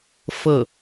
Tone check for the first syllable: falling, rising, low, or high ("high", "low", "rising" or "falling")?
falling